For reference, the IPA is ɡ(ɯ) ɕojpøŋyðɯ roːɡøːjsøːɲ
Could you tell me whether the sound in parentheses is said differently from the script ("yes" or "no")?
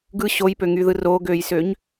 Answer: no